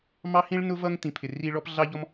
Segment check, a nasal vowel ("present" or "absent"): present